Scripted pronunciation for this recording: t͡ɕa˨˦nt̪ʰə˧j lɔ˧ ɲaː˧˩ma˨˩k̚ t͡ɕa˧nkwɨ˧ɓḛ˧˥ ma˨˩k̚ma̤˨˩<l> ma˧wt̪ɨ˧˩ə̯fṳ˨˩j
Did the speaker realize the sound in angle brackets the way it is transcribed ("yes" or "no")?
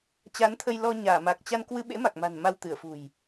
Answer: no